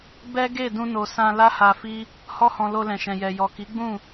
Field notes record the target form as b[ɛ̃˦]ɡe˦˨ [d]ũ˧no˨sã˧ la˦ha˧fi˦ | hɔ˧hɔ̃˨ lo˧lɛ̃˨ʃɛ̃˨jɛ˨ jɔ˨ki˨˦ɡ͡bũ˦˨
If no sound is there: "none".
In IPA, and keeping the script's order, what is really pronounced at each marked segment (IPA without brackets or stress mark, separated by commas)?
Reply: ɛ˦, d